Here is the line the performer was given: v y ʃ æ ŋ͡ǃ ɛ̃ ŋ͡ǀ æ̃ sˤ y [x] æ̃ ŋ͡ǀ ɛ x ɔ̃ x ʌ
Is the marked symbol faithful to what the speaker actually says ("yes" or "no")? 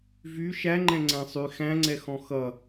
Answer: yes